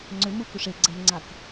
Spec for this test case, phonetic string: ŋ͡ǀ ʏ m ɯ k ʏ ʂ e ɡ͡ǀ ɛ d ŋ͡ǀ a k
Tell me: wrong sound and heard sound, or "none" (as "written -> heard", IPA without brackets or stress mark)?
d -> n